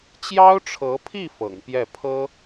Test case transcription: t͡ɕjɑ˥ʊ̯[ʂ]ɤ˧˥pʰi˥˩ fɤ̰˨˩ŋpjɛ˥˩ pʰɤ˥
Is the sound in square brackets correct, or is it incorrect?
incorrect